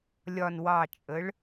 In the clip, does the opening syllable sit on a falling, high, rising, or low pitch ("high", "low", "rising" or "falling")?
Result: low